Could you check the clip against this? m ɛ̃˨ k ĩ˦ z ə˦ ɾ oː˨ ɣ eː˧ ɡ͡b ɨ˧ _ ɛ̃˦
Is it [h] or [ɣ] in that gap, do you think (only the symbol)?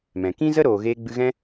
ɣ